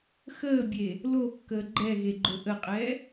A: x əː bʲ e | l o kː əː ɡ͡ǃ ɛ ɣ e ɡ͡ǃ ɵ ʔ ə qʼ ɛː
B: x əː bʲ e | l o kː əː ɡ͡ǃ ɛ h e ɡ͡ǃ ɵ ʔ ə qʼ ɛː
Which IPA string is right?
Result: A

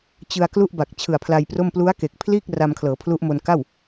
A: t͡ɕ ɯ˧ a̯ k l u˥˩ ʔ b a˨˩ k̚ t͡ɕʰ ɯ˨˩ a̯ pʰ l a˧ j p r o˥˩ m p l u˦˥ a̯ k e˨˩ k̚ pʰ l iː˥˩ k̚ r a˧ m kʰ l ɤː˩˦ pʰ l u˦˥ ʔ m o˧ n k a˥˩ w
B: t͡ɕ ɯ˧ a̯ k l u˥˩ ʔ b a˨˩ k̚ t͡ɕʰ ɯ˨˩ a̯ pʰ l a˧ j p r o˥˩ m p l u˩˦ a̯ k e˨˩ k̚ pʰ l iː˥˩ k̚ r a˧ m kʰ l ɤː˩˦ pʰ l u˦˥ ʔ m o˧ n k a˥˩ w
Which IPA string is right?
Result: A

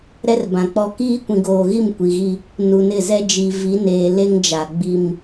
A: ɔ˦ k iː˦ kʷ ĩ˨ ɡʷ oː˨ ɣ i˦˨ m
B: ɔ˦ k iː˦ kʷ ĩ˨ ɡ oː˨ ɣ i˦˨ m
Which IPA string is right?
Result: B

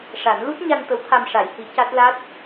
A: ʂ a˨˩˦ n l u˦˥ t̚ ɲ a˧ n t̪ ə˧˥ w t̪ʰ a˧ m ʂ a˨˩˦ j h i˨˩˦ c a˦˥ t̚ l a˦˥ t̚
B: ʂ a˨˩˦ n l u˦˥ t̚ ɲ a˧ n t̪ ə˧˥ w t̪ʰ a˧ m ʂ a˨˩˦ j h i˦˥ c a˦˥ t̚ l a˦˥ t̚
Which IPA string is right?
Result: A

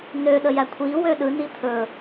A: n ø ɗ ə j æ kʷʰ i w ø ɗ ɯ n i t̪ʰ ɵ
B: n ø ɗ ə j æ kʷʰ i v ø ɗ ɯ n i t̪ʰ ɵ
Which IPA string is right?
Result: A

